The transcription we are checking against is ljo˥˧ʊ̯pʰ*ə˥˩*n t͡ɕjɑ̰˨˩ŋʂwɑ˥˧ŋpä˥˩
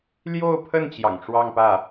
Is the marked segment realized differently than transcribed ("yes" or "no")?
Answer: no